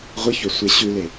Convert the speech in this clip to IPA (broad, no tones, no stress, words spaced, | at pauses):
ʁʷɨçɵ sʷeɕʉle